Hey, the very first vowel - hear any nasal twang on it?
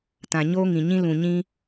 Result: yes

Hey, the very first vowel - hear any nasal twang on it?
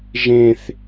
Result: yes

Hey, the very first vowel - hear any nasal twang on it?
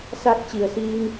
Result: no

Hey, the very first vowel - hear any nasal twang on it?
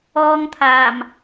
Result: no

